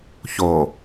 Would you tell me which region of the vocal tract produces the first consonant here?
palate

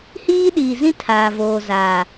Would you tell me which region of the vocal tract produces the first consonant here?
throat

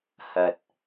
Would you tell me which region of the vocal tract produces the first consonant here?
throat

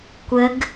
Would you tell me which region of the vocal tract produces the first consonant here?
velum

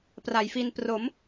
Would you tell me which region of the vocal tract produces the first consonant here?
lips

